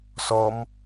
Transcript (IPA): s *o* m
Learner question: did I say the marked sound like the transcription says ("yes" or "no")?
no